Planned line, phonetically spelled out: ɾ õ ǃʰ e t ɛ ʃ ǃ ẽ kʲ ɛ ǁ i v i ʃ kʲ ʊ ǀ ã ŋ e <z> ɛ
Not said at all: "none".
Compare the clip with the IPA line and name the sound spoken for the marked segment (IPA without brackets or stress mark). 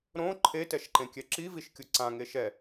ʃ